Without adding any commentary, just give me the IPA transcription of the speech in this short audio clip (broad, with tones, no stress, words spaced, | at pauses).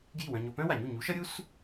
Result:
ɡji˥˩wœ̃˧ɲo˧ pœ̃˥wa˩ɲu˥˩ ɲu˩˥ʃʌ˥ɾʲu˥s